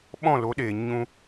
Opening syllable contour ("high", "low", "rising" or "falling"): falling